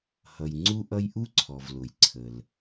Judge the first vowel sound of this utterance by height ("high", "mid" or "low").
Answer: mid